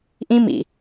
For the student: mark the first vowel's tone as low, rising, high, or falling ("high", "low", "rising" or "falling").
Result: high